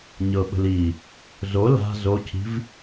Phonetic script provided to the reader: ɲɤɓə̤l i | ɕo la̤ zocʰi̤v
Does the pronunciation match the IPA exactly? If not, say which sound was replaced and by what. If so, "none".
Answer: ɕ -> z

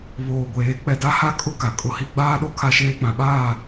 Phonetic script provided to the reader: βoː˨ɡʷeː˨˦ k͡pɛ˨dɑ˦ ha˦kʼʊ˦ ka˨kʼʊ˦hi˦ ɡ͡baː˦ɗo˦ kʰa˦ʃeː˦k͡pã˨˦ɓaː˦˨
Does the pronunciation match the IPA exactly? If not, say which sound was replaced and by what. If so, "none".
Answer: ɑ˦ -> a˦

